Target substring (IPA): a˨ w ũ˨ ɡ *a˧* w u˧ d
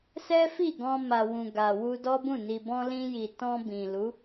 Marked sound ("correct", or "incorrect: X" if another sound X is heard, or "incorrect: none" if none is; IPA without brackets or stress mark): incorrect: a˨